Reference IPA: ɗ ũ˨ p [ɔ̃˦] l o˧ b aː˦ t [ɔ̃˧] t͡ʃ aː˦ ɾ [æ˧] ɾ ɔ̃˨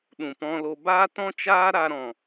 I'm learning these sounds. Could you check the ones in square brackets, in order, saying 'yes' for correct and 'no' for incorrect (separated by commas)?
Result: no, no, no